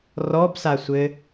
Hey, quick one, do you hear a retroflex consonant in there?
no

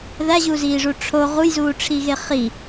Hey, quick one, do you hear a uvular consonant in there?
yes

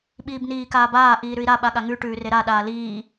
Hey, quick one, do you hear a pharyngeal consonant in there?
no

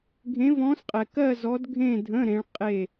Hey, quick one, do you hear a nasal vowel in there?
yes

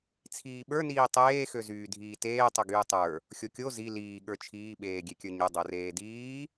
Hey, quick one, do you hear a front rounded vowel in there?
yes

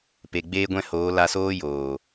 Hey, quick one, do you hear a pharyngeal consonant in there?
no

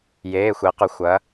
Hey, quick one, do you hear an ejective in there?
no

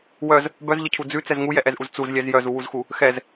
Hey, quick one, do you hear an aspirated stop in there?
yes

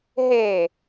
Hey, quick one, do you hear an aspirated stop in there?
no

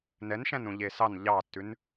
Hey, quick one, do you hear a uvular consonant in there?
no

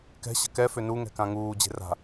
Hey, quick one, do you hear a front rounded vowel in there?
yes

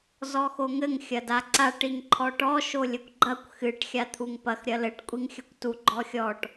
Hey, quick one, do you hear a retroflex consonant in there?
yes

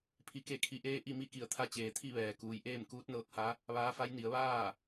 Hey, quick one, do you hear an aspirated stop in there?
yes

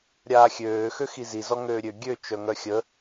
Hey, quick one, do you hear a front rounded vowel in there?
yes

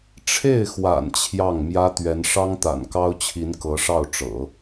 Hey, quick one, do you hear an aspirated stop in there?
yes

